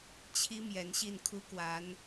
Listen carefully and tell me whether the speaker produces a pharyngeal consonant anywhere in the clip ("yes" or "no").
no